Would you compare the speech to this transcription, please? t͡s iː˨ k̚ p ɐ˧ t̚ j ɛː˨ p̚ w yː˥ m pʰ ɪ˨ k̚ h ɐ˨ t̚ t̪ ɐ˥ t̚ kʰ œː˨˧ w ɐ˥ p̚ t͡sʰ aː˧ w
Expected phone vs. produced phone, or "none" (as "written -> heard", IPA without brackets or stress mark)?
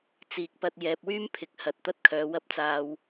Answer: t͡sʰ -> t͡s